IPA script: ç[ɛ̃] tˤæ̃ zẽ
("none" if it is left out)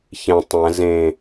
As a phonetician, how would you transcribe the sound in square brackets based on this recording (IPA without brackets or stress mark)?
ẽ